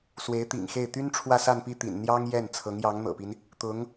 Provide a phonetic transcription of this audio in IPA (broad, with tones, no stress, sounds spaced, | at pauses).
s w e˧˥ ɪ̯ t̪ ḭ˨˩ ŋ x e˥˩ ɪ̯ t̪ y˥ n ʈ͡ʂʰ w ä˥˧ s a˥˧ n p i˥˩ t̪ ḭ˨˩ n n̪ j ɑ˥ ŋ j ɛ˥˩ n t͡sʰ ɤ˧˥ ŋ j ɑ˧˥ ŋ n̪ ɤ̰˨˩ p i˦ n | t̪ ʊ˧˥ ŋ